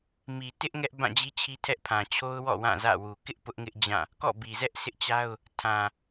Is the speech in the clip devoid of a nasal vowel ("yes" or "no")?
no